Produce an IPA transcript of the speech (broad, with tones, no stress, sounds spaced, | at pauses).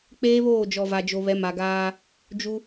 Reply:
k͡p eː˦ β oː˦˨ d͡ʒ ɔ˨ v a˨ d͡ʒ o˨ β ɛ˨˦ m a˨ ɡ aː˦ | d͡ʒ u˦